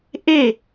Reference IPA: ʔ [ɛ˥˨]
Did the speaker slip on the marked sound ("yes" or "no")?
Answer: yes